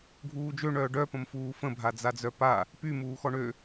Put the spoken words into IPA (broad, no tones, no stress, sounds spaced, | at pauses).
ɡʱ uː d͡ʒ ø ɳ œ ɖ œ p ə̃ m f uː f ə̃ bʱ a d͡z a d͡z œ p a | p y m uː x ɔ ɳ ø